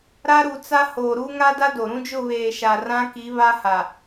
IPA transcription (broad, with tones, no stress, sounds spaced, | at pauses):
ɾ a˦ ɾ u˨ t͡s a˦ h o˨ ɾ u˦ ŋ a˦ d a˦ d o˨ ɾ ũ˦ d͡ʒ ʊ˦˨ β eː˨ ʃ a˨ r ã˦ k i˨˦ β a˦ h a˨